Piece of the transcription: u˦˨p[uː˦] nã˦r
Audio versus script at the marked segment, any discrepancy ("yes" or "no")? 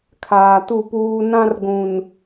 no